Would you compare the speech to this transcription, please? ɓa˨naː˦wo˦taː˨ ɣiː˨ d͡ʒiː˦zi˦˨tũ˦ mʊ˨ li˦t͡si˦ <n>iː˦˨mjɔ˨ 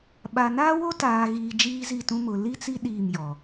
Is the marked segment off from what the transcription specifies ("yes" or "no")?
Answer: yes